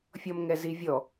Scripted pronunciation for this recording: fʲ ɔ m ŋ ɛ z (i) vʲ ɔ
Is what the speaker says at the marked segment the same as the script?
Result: yes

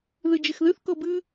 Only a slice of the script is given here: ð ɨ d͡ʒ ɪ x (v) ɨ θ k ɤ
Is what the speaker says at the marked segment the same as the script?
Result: no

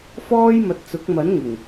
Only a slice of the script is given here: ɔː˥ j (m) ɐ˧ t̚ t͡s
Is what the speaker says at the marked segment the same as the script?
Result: yes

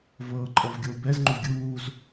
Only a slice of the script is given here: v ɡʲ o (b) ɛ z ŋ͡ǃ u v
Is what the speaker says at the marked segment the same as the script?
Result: yes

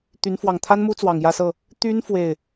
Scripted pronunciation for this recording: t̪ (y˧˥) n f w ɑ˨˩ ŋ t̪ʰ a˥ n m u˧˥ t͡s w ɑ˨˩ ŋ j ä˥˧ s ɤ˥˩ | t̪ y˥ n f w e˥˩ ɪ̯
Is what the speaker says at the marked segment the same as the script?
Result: yes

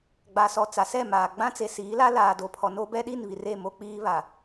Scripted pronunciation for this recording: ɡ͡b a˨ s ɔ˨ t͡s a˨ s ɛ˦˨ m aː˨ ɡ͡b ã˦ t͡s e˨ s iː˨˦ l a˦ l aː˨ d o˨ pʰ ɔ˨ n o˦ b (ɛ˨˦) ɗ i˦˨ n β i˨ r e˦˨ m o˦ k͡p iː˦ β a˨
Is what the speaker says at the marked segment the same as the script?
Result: no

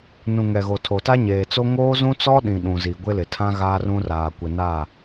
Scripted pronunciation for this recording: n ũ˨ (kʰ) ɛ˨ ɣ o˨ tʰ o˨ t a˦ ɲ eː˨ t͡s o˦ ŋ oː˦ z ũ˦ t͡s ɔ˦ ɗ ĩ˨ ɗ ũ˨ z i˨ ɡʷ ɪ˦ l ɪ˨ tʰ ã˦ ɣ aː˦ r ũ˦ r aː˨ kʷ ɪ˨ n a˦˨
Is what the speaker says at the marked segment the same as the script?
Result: no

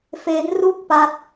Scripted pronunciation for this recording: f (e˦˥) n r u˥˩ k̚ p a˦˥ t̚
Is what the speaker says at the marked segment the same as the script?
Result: yes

